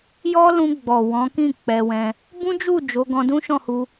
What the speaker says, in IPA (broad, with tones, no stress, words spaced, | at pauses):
jɔ˦lũ˧ ɡ͡bɔ˨wɔ̃˨˦kĩ˦˨ k͡pɛ˧wɛ̃˧ | bũ˦d͡ʒu˦˨ d͡ʒo˨˦ ɡɔ̃˧dũ˦ ʃɔ̃˦˨hu˧